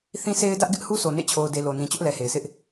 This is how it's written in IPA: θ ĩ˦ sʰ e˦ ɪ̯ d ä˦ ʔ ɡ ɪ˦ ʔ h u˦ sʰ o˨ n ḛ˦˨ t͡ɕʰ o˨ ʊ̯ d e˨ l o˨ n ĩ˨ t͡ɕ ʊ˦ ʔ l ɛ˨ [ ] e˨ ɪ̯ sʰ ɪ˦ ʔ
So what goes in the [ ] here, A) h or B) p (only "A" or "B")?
A